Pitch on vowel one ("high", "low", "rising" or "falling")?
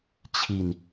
low